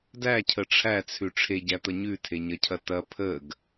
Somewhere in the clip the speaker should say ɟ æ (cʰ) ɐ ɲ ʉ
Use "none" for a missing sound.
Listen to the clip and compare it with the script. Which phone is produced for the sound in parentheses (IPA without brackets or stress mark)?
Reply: t̪